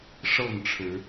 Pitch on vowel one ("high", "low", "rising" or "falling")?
falling